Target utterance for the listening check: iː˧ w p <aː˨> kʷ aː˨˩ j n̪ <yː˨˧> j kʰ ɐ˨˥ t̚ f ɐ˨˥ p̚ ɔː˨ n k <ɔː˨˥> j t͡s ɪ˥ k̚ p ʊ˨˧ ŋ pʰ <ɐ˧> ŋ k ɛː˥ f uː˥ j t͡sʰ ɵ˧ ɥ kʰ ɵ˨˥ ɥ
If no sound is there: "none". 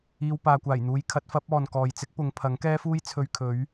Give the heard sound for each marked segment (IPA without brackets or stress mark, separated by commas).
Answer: aː˨, uː˨˧, ɔː˨, ɐ˨˥